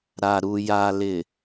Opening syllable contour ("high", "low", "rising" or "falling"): low